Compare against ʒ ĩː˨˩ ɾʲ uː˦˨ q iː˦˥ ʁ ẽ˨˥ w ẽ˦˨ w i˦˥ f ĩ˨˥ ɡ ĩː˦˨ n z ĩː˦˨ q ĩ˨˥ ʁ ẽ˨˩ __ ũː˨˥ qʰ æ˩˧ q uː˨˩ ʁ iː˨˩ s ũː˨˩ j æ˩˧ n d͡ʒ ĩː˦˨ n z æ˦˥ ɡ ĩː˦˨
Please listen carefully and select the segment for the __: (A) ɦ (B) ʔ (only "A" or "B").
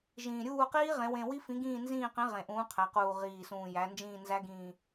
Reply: B